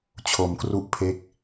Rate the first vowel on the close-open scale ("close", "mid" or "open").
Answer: mid